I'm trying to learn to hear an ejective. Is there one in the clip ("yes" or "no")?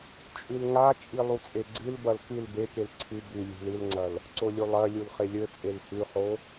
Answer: yes